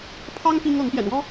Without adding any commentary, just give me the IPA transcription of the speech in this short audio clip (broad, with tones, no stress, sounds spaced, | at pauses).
pʰ ɑ˥ ŋ p i˥ ŋ ɤ˧˥ ŋ p j ɛ̰˨˩ n w ɔ˥